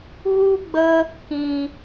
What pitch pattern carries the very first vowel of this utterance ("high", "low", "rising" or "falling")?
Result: high